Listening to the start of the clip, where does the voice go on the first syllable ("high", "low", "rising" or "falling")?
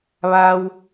low